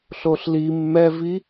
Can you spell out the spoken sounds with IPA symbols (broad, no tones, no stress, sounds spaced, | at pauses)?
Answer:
ɬ o ɬ l i mː ɛ v i